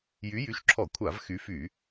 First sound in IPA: j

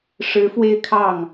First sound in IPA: ʂ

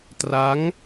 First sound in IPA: t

